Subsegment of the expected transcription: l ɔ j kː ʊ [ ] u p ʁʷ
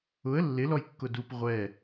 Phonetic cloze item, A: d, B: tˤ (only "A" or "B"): A